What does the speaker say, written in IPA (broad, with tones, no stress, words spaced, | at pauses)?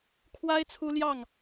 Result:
kʰwa˥ɪ̯ t͡sʰu˥ljɑ˥˩ŋ